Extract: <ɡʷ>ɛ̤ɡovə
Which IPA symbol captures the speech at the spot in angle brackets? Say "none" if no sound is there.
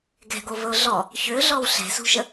ɡ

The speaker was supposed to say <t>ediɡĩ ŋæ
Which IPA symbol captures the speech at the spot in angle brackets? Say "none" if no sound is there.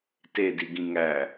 t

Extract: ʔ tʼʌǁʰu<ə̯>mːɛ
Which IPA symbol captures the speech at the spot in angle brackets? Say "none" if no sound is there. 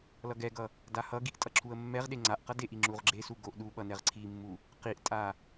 ə̯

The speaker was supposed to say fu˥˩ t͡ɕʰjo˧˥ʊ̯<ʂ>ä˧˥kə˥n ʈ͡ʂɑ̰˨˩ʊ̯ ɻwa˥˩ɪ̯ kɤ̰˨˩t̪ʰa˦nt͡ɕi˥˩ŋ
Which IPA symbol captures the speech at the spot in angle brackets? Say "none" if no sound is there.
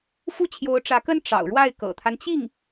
ʈ͡ʂ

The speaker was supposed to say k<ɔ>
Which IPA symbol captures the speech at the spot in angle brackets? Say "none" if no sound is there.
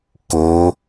o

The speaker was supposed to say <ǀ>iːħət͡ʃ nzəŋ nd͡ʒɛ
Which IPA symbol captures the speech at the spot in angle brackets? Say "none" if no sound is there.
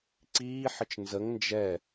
ǀ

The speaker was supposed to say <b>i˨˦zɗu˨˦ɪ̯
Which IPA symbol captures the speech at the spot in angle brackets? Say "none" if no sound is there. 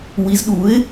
w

